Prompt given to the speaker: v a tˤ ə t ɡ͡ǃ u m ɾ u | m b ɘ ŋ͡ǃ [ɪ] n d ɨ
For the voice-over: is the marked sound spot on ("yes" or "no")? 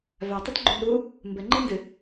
no